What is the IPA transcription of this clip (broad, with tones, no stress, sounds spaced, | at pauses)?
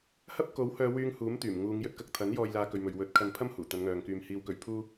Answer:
h ɐ˥ p̚ k o˨˥ w h œː˨˧ w yː˧ ŋ h uː˨˥ m t̪ yː˨˩ m ŋ uː˨˧ ŋ j ɵ˨˥ t̚ k ɐ˨ k̚ t̪ʰ ɐ˨˥ n j ɔː˨ j l aː˨ k ɵ˨ ɥ m ɵ˨ ɥ w ɵ˨˥ t̚ kʰ ɐ˧ n pʰ ɐ˥ m h uː˨˩ t̪ ɐ˨˧ n ŋ œː˨ ŋ k yː˨ m h iː˨˧ w k ɵ˨ ɥ pʰ uː˥